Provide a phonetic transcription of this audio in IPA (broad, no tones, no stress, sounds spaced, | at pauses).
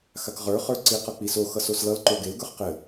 x a k ʁ ə˞ χ ə˞ ǀ i q ʌ k͡p i s o x ʌ s o s l ʌ l ǃ o ɡ e l ɡ ə˞ χ q ɘ